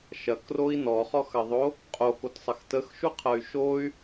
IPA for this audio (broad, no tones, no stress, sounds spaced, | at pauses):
ʃ ɐ k r o i̯ n ɔ χ ɔ x ɐ ðˤ o | qʼ o k o t sˤ ɐ x t ə x ʃ u qʰ ɐ y̯ ʃ o y̯